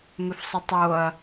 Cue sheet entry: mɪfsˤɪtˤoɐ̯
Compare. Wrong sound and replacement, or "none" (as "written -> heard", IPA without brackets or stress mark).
none